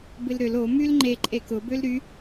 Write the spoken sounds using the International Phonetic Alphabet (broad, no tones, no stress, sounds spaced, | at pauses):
b ɪ l ɾ ʏ l o m y l ŋ͡ǃ e ǃʼ e k ʊ b ø l ɾ y